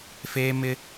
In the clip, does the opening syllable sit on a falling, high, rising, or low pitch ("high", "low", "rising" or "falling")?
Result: high